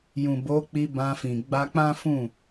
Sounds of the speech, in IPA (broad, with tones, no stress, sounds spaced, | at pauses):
j ũ˨ b o˨˦ k͡p i˧ b ã˧ f ĩ˨ ɡ͡b a˧ k͡p ã˦ f ũ˦˨